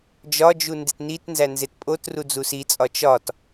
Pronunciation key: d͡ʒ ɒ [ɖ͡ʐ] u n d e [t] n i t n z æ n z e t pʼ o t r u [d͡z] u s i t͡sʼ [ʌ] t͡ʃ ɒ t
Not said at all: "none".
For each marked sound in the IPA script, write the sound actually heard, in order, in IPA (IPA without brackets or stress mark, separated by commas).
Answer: d͡ʒ, t, d͡z, ɒ